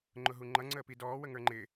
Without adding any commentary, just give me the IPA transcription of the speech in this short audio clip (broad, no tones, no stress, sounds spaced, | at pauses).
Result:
ŋ͡ǃ ʊ ɦ u ŋ͡ǃ ʌ ŋ͡ǀ əː p i d ɔː w ə ŋ ə˞ ŋ͡ǃ ɪ